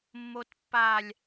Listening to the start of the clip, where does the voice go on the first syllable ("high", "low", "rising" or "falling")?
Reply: low